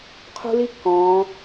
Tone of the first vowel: high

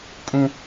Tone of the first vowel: high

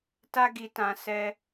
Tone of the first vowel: high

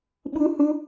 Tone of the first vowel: high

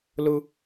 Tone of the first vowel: high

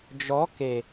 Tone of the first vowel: rising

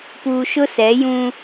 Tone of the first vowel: low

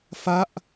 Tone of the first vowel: falling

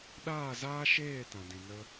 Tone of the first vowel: falling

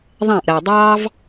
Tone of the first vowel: falling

